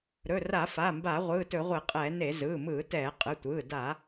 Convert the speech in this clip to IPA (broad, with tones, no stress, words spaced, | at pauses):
ɾɵ˩˧˩ra˧˩˧fa˩˧˩mba˧˩˧ ʁʷɯː˩˧˩tɵ˧˩˧ʁʷe˧˩˧qʼɛː˧˩˧ ne˧˩˧ zɯː˩˧˩mɯː˧˩˧tɛː˧˩˧ qʼɯ˩˧˩tʷɯː˩˧˩ da˧˩˧